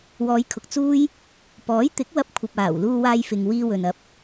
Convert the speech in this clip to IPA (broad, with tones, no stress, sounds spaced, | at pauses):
w ɔː˨˧ j kʰ ʊ˨ k̚ t͡s uː˥ j | p ɔː˨˥ j t̪ ɪ˨˥ k̚ w ɐ˧ p̚ kʷʰ ɐ˨ p̚ aː˨˩ w l uː˧ w aː˧ j f ɪ˨ ŋ w iː˧ w ɵ˨ n ɐ˧ p̚